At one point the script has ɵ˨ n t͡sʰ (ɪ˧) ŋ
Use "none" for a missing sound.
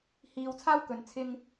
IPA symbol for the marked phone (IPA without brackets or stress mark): ɪ˥